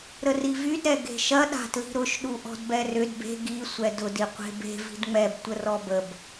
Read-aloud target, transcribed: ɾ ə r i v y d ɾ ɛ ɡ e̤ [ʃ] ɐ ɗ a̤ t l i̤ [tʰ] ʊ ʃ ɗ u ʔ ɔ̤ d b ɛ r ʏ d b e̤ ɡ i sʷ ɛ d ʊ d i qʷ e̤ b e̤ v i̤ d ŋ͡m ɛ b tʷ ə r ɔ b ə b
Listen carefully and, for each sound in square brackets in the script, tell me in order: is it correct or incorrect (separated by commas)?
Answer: correct, incorrect